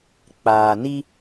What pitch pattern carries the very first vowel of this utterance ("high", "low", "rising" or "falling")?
low